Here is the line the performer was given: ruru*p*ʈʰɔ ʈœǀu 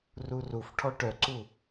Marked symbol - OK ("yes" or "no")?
no